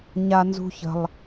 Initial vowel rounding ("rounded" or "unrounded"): unrounded